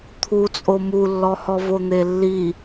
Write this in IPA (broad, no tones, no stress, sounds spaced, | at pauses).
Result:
t̪ʰ u t͡sʼ o m u lː ɔ h ɔ v o n̪ e lː i